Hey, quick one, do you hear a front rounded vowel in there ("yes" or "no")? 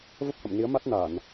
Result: no